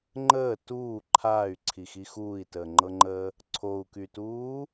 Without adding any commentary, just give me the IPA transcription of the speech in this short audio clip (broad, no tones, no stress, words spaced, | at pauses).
ŋ͡ǃəː tuː ǃʰaːy̯ǀʰixi xuːi̯təːŋ͡ǃɤŋ͡ǃəː | ǀʰou̯kytuː